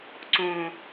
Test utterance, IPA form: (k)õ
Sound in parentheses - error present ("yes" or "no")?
yes